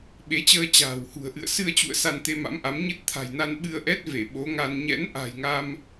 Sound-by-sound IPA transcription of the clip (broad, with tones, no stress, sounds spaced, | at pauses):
ɓ e˨˦ t͡ɕ əː˧ t͡ɕ a̤ː˨˩ w h ṳ˨˩ ə̯ ʔ ɨ̰˧˨ ə̯ s ɨ˧ ə̯ t͡ɕ ṵ˧˨ ə̯ s a˧ n t̪ e˧ m a̰˧˥ m ʔ a˨˦ m ɲ ɨ˦˥ t̚ t̪ʰ a̤˨˩ j n a˧ n ɓ ɨ˧ ə̯ ʔ ɛ˦˥ t̚ v e˧˩ ɓ o˨˦ ŋ a˧ n ɲ ɛ̰˧˥ n ʔ a̤˨˩ j ŋ a˧ m